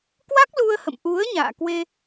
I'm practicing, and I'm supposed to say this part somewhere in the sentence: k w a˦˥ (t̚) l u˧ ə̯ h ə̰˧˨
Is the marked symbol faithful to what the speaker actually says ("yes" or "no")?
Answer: no